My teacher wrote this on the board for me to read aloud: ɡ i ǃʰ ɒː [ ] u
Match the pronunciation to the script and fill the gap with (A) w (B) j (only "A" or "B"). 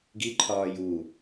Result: B